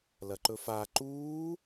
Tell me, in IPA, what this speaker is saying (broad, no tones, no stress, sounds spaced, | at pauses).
l ɐ ǃ ɵ f a ǃ uː